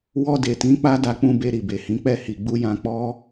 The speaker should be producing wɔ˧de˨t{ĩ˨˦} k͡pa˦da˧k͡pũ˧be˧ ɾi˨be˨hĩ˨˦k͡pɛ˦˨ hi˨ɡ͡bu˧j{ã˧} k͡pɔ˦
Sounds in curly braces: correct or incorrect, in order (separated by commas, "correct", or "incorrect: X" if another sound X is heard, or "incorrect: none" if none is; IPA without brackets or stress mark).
correct, correct